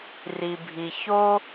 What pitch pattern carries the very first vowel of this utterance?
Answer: low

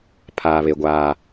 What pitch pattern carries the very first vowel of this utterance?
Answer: low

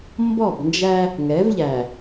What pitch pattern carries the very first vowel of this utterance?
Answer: falling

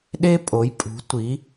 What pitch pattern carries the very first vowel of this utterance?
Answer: high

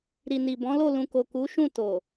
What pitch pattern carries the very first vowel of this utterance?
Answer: low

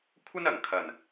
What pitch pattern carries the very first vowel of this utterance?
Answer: high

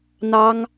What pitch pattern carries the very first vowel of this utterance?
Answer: high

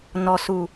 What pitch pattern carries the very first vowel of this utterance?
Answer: low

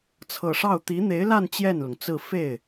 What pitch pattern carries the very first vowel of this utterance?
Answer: low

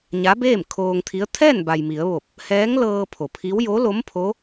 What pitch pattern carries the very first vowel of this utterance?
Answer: rising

